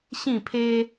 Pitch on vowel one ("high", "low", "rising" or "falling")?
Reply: falling